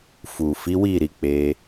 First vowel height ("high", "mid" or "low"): high